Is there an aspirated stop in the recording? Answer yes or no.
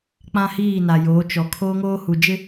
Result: yes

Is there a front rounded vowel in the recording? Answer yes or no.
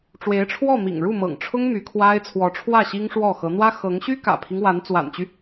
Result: yes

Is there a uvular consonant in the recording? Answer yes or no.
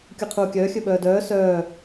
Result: yes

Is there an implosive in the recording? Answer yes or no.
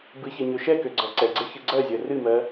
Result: no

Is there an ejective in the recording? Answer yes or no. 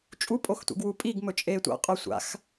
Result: yes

